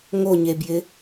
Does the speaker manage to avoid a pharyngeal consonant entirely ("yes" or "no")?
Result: yes